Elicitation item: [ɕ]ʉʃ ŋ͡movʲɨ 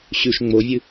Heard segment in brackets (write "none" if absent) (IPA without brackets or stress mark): ɕ